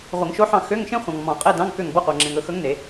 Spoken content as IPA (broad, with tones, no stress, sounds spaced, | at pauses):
ʁʷ e˨˩˦ ŋ ʃ o˧˥ ħ ɑ̃˦˨ x ø˧˥˧ ŋ ʃ ẽ˥ χʷ ɑ̃˨ ŋ m ɔ̃˨˩˦ qʼ ɛ˧˥˧ d ɑ̃˧˥˧ ŋ k ø˦˨ ŋ b ɔ˧˥˧ qʷ ɑ˨ ŋ͡ǁ ẽ˨ ŋ ɵ˦˨ x ɵ˧˥ ŋ n e˨˩˦